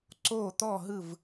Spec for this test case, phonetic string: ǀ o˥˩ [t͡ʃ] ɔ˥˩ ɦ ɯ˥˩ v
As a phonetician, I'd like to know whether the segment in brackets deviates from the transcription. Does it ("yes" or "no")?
yes